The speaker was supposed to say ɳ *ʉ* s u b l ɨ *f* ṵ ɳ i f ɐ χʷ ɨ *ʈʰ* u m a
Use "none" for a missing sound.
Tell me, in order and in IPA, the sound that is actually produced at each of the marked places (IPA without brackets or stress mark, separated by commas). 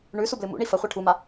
ʉ, m, ʈʰ